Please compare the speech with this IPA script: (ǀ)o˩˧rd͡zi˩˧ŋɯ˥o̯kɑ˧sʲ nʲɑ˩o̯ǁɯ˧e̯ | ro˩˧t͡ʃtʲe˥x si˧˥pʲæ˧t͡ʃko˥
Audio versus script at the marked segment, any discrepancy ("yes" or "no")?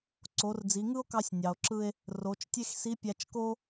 no